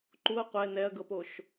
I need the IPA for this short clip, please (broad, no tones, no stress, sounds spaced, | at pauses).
ǃ u ɐ̯ qʷ ɛ n ɛ ɐ̯ ɡ ɤ p o ʃ